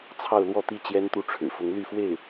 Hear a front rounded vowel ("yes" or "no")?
yes